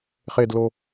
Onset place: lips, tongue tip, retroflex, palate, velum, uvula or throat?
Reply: uvula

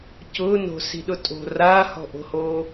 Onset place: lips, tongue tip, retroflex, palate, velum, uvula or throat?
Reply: palate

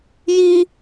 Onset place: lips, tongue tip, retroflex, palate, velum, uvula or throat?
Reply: palate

